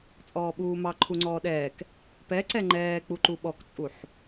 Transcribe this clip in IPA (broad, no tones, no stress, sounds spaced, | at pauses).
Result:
t͡sʼ ɔː ɓ uː m ɑ ǃʰ u ŋ͡ǀ ɔː ɗ ɛː k | p ɛ ǀ ɛ ŋ͡ǃ ɛː k͡p u ǃ u ɓ ɔ k t͡sʼ u ħ